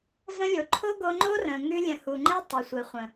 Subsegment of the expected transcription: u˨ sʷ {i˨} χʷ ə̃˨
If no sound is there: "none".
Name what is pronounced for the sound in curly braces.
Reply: e˨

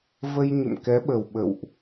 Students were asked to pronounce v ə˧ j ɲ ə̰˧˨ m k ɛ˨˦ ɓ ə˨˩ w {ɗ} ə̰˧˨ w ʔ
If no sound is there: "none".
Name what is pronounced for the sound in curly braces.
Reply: ɓ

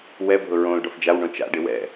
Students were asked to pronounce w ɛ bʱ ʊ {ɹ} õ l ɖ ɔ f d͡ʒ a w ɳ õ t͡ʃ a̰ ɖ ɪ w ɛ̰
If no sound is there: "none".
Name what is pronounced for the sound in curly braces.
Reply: ɹ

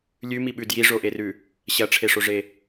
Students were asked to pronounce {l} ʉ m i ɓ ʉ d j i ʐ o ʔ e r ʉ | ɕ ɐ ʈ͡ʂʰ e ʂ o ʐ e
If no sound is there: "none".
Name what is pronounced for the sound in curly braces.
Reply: lʲ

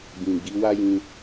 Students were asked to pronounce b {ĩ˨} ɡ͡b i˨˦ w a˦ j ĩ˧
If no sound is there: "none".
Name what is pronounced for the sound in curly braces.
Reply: ĩ˨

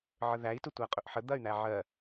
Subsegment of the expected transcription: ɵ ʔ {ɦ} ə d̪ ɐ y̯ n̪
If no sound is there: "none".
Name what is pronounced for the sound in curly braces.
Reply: ħ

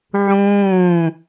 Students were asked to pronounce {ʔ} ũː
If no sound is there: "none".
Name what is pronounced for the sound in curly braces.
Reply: ʕ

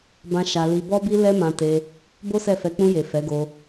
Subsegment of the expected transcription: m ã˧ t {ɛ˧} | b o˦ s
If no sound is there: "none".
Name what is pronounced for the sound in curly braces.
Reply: e˧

